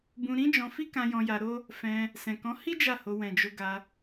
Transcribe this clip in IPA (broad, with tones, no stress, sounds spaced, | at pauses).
b ũ˧ ɾ ĩ˦ d͡ʒ ɔ̃˧ f i˦ k ã˧ j ɔ̃˧ j a˧ ɾ o˦ | f ɛ̃˧ | s ɛ̃˨ k ɔ̃˨˦ h i˦ d͡ʒ a˦˨ h o˧ w ɛ̃˨ d͡ʒ o˧ ɡ a˧